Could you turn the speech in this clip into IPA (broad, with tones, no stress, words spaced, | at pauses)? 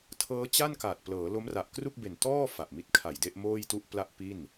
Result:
tʰɤː˦˥ t͡ɕa˥˩nkaː˨˩t̚ plɤː˩˦ lo˦˥mra˨˩ʔkru˥˩k̚be˨˩n tɔː˥˩ fa˨˩ʔmi˦˥t̚kʰa˨˩jde˥˩ʔ moː˥˩jtu˥˩ʔpla˥˩ʔ pi˥˩n